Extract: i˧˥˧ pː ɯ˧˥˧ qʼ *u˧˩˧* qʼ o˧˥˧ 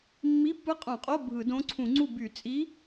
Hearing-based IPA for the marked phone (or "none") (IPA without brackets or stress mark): ũ˧˩˧